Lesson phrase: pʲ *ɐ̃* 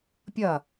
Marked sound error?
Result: yes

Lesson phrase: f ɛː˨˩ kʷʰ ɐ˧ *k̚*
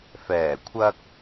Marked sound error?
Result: no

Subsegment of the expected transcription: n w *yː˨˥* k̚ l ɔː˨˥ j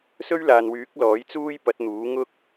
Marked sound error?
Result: no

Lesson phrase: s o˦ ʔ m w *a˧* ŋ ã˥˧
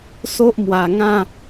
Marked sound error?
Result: yes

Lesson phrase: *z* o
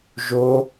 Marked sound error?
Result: yes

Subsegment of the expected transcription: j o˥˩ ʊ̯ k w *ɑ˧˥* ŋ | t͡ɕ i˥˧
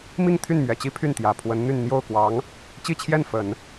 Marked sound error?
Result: no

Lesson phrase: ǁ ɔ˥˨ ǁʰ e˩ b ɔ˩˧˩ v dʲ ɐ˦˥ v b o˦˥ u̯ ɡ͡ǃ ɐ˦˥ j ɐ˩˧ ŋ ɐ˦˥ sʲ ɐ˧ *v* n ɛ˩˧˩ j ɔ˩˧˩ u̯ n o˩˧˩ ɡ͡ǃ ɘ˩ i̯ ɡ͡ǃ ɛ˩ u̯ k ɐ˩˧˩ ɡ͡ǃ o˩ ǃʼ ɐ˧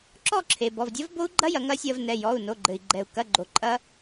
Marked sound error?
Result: no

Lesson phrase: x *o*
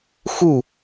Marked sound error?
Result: yes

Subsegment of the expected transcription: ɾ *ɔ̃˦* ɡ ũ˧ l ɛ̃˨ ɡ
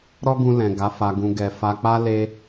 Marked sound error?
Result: yes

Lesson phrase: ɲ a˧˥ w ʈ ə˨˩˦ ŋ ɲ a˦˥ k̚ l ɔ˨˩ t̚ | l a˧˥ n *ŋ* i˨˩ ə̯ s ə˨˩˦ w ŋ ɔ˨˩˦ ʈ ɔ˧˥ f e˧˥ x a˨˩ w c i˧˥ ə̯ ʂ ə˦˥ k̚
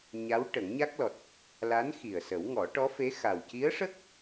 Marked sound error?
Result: yes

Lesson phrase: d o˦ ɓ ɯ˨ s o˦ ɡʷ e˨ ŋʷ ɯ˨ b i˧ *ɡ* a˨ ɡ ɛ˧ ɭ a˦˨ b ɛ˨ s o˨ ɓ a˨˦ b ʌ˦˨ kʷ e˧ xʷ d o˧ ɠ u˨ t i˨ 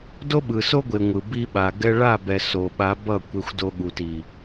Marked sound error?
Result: yes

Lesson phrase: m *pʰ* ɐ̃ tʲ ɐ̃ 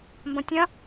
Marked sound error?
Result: yes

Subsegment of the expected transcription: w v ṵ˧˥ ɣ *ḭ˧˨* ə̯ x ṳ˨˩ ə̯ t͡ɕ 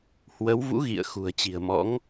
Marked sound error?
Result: no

